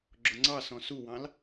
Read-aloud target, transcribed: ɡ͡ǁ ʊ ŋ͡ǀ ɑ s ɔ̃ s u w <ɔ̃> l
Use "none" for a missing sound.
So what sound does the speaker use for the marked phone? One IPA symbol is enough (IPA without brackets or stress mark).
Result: ɑ̃